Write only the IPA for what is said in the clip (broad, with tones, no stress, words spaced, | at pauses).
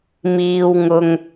miː˥wŋʊ˥ŋ